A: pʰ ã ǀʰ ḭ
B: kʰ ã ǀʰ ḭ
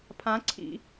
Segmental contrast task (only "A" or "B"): A